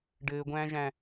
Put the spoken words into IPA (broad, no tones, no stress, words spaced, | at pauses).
ɖɘːɡʷæ̃ːʒæ̃